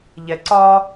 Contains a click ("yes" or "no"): yes